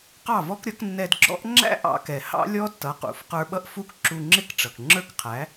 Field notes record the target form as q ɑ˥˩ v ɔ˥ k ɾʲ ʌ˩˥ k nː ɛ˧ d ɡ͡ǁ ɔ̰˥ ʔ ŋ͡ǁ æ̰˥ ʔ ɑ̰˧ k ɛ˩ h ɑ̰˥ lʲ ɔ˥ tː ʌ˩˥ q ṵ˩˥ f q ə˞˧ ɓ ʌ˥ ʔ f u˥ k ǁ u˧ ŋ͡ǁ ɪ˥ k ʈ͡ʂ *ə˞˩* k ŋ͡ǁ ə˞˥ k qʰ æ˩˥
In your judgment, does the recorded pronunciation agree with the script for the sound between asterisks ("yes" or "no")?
no